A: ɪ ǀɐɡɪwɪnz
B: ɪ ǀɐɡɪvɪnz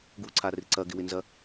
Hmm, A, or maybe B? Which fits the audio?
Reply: A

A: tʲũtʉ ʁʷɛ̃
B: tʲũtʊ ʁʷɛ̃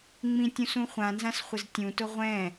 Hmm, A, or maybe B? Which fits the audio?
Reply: B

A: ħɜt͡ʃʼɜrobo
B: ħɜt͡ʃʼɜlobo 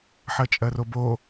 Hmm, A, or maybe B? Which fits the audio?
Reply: A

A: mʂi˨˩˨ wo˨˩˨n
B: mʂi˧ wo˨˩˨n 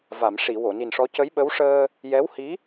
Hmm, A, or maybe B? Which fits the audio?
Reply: A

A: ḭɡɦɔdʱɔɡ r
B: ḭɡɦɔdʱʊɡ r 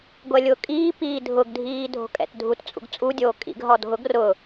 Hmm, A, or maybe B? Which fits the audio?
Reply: B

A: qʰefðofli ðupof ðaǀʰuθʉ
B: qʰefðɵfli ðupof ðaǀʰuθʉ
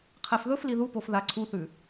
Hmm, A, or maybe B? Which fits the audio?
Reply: B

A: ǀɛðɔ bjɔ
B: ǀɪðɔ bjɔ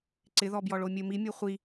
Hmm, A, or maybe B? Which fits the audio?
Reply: B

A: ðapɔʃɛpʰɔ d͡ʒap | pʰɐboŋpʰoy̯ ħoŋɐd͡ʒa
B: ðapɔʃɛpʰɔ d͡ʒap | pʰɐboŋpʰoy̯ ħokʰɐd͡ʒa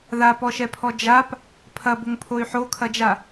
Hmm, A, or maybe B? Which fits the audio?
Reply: B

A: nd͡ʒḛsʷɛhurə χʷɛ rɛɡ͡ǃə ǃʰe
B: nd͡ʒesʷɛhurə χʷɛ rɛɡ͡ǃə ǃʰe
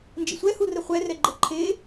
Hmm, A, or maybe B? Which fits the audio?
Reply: A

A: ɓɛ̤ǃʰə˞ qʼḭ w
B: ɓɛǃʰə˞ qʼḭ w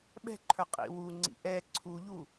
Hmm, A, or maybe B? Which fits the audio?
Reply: A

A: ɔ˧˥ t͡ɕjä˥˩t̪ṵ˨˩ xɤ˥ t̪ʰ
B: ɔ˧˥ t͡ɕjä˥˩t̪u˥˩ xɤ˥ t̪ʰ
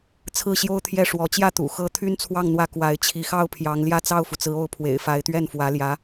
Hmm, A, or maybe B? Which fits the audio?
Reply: A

